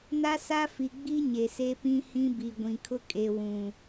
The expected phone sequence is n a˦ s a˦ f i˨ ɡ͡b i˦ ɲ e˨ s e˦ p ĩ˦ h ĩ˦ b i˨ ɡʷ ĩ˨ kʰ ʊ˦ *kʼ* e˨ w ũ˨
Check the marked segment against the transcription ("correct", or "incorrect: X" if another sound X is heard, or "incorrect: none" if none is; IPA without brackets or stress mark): correct